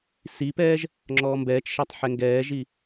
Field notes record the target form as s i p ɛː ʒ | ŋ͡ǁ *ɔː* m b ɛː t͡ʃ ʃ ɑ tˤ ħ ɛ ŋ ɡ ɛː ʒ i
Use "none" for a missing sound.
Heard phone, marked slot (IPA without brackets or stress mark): ɔː